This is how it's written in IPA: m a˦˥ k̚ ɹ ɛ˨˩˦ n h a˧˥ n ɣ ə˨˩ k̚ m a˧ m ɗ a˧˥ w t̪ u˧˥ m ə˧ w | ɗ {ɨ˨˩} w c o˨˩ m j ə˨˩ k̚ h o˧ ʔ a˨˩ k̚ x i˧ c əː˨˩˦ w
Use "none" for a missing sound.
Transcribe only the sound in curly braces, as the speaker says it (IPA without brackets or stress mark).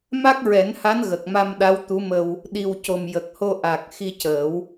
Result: i˨˩